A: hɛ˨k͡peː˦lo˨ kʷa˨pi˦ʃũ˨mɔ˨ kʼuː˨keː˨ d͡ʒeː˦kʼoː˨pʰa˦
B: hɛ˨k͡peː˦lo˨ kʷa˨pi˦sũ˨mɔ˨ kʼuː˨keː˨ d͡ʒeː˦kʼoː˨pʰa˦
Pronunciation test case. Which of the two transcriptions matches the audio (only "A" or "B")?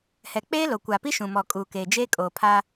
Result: A